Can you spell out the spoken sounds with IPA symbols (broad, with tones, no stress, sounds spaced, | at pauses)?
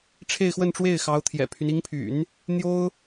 ʈ͡ʂʰ e˥˧ ɪ̯ x w ə˥˧ n ʈ͡ʂ w e˥˩ ɪ̯ x ɑ˧˥ ʊ̯ t̪ʰ j ɛ̰˨˩ pʰ y˦ n i˧˥ ŋ pʰ y̰˨˩˦ n | n̪ j o˥ ʊ̯